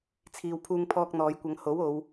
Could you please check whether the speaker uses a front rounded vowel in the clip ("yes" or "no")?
no